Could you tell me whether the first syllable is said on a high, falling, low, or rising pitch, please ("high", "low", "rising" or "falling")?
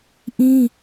high